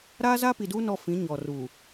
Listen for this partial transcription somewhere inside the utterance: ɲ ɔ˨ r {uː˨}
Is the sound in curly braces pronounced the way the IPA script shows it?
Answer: yes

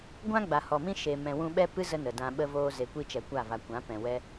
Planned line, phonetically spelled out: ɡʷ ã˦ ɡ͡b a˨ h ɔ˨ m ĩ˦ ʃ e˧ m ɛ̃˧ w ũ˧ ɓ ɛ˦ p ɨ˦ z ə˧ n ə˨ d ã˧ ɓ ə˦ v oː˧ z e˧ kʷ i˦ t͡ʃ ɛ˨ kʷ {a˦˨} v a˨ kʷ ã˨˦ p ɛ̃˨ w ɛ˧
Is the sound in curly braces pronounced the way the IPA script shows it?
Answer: yes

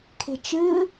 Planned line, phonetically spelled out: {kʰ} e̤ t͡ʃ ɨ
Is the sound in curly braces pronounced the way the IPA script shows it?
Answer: yes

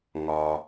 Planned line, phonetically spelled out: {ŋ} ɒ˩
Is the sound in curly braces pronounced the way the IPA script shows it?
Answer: yes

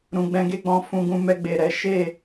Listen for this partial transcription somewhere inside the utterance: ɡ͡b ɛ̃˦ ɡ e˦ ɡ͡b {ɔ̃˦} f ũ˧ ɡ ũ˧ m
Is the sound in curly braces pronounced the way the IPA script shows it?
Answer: yes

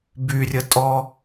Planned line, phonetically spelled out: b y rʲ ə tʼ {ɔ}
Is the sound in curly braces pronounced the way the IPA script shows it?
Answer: yes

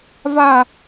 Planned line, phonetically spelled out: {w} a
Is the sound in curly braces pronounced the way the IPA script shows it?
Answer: no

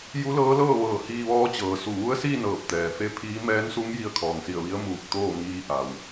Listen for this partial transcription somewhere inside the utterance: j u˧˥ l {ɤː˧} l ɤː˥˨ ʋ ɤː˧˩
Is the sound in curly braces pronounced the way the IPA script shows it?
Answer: no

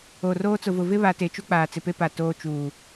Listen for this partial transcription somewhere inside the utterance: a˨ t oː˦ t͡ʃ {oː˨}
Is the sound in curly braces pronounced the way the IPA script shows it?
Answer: no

